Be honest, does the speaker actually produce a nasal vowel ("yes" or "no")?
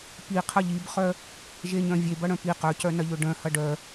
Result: yes